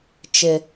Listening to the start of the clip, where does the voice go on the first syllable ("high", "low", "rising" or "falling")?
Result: low